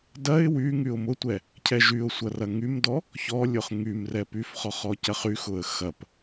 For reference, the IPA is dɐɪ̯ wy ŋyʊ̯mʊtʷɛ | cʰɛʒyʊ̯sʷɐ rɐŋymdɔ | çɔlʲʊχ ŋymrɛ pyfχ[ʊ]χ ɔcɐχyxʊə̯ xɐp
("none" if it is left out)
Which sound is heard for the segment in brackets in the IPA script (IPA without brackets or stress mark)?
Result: ɔ